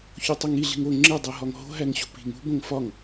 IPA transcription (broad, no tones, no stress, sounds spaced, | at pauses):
ç o tˤ o ŋ i ɮ i̤ ŋ o ŋ͡ǁ e dˤ e ɦ ɒ ŋ ɦ o̤ ɦ æ ŋ ɕ ṳ p i̤ ŋ ṳ b õ ŋ f ɒ ŋ